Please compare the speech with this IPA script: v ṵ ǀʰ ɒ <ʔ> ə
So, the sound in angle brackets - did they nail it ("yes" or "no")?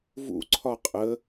no